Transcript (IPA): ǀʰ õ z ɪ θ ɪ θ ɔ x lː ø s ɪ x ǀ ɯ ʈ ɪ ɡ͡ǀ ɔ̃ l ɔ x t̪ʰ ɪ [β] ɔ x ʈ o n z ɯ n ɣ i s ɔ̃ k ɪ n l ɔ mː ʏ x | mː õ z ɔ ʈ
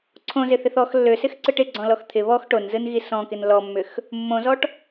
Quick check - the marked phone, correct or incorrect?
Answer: correct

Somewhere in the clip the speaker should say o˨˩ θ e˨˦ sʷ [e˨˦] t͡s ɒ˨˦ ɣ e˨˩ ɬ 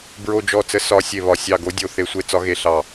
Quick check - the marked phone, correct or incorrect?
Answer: correct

